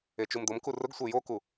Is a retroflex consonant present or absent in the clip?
absent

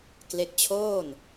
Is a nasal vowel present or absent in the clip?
absent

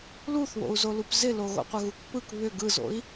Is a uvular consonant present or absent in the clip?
present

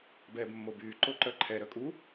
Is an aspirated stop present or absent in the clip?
present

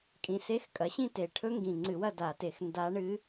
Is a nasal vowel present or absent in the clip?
present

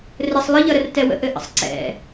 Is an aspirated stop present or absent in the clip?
absent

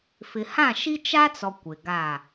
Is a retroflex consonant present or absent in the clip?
absent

